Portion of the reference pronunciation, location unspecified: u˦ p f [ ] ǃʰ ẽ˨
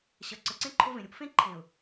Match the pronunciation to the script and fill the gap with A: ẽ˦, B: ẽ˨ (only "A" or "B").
A